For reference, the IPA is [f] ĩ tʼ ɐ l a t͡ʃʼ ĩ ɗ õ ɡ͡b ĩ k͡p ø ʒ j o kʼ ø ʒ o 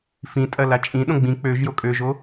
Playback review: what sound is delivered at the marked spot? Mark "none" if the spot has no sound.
f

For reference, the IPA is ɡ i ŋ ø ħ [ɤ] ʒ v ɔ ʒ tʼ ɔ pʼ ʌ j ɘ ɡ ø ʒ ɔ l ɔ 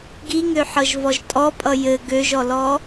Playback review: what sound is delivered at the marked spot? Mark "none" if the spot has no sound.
ɤ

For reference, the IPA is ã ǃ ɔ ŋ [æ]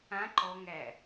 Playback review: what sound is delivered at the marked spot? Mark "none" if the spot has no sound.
æ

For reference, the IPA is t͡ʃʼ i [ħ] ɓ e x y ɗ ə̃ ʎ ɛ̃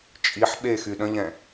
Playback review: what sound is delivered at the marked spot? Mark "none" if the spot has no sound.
ħ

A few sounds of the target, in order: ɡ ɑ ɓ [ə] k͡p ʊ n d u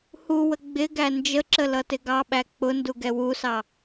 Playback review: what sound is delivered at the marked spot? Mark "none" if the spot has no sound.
æ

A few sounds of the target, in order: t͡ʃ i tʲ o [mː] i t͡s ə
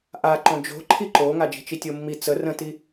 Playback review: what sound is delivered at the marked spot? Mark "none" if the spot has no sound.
mː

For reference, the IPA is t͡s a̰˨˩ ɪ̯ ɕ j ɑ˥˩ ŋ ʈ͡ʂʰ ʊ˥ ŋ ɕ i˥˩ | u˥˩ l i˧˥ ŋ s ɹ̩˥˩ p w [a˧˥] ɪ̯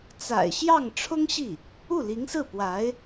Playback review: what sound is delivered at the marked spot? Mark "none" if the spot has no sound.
a˧˥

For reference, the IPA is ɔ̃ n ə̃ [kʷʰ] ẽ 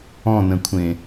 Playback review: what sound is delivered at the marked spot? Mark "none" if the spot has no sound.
kʷʰ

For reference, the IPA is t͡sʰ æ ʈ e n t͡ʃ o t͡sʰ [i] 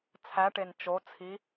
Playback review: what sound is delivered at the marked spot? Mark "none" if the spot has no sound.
i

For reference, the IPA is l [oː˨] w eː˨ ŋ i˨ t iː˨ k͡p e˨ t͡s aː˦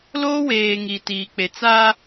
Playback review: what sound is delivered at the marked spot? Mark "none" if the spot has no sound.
oː˦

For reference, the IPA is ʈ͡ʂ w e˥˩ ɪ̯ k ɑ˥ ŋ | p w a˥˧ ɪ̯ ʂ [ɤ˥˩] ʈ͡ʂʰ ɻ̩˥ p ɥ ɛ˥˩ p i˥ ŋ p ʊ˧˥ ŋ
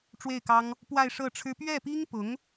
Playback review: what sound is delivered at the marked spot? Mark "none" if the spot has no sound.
ɤ˥˩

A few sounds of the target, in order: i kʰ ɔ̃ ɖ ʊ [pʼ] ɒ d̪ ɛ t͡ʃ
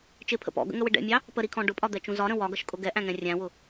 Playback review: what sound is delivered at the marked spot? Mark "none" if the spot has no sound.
pʼ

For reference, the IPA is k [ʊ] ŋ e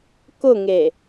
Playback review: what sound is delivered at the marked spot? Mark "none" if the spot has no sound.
ʊ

